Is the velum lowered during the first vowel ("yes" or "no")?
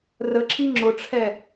no